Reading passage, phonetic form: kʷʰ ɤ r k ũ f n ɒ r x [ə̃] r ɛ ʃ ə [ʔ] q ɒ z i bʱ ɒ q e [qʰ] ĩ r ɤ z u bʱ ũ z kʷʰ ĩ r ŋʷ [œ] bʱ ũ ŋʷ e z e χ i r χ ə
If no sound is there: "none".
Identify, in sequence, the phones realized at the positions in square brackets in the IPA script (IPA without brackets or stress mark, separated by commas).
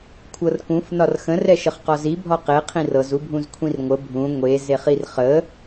ə̃, χ, qʰ, ə